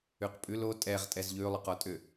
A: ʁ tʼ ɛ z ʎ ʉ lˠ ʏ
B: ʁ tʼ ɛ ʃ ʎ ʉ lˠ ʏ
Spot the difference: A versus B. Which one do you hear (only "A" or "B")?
A